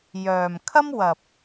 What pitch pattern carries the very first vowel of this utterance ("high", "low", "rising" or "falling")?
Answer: low